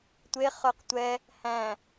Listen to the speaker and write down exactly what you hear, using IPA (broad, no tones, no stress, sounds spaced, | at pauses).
tʷ e χ œ q tʷ ɛ | h æ̃